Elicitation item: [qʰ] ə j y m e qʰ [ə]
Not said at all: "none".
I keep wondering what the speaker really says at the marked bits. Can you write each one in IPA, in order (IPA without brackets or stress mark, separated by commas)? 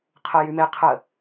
qʰ, ə